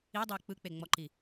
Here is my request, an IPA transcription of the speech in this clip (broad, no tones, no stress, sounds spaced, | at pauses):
i dˤ iː k͡p ɯ k͡p e ŋ͡m ɔ ǃ i